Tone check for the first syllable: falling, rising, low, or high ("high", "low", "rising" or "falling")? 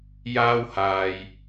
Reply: high